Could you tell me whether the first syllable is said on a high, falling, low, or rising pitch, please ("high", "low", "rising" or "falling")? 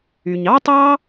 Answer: low